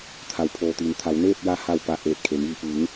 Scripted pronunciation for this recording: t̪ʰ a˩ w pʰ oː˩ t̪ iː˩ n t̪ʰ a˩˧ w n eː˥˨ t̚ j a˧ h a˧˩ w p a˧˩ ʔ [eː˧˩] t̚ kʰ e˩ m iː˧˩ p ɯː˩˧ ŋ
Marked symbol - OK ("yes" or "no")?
yes